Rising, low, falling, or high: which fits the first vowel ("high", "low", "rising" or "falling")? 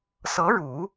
rising